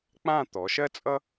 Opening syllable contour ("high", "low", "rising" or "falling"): falling